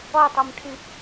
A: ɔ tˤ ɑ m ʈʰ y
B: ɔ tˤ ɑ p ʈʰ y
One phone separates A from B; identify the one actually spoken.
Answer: A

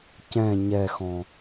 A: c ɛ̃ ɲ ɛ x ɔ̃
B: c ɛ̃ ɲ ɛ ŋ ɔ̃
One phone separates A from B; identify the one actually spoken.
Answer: A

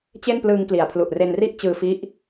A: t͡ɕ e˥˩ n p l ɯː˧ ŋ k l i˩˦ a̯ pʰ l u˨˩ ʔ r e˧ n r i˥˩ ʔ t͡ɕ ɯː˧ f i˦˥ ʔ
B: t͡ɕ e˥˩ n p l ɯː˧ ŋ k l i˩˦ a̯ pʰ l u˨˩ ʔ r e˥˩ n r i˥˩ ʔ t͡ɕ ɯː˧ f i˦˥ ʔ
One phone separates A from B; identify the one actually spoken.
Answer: A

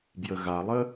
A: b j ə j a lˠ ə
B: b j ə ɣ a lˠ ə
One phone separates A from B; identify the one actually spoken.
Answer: B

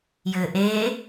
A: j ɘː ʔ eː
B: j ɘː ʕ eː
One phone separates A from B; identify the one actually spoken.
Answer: A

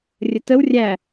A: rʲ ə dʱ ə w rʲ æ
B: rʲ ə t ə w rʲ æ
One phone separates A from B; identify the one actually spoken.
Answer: B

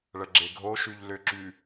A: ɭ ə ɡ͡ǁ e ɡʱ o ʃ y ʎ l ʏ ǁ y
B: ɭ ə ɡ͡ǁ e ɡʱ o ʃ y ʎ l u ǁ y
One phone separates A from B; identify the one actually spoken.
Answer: A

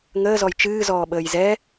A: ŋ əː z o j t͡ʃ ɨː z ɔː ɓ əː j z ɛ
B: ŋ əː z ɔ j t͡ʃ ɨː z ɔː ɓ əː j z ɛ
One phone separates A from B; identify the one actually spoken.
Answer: B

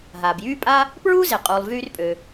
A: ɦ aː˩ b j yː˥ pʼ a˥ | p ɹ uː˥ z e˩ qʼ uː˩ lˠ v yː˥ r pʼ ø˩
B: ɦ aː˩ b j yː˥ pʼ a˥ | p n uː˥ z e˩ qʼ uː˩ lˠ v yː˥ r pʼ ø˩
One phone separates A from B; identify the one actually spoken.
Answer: A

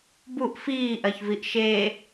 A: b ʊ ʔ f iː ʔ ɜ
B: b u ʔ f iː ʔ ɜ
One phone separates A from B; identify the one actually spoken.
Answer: B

